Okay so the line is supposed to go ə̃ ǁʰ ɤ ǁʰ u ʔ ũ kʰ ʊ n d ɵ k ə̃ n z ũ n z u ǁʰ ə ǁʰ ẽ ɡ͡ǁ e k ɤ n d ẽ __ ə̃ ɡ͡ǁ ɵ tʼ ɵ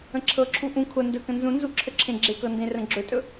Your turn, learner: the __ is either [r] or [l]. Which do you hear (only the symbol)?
r